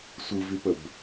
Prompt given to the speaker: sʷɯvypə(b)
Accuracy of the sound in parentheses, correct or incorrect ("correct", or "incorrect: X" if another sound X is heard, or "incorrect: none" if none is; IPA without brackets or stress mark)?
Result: correct